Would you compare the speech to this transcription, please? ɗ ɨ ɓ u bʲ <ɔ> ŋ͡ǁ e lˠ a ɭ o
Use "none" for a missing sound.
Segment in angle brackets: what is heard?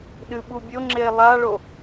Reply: o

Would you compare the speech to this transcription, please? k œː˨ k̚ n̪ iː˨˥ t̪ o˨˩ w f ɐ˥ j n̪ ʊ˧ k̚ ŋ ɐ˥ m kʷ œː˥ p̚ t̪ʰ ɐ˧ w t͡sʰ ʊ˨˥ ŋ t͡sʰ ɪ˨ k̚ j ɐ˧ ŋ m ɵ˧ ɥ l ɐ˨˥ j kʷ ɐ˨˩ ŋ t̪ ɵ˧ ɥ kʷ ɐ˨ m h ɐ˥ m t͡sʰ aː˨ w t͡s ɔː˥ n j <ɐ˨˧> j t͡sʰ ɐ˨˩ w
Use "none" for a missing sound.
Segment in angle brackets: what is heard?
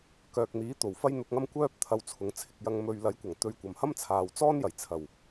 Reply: ɐ˨˩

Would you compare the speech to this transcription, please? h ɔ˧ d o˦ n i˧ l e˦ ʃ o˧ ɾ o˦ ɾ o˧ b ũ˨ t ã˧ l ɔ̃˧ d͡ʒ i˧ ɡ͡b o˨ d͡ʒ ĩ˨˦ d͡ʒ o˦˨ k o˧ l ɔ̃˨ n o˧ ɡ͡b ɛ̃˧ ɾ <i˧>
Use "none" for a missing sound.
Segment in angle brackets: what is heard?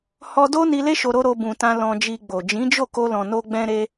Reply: e˧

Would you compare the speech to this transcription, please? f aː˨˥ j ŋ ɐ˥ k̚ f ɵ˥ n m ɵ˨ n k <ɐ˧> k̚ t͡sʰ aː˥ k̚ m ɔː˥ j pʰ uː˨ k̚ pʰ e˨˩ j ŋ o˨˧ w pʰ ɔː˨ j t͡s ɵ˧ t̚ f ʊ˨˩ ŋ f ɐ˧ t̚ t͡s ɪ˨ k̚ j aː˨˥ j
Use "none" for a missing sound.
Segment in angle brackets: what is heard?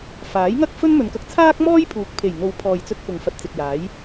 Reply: ɐ˧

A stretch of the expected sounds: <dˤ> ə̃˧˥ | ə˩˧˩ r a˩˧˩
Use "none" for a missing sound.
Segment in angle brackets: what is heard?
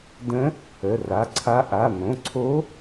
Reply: d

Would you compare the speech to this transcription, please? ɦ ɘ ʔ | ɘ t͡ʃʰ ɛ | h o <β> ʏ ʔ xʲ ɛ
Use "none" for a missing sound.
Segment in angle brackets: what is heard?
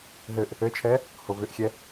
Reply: β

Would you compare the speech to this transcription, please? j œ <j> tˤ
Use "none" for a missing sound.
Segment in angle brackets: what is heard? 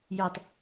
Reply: none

